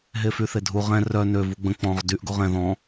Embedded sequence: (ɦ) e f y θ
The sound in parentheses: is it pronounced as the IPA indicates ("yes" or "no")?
yes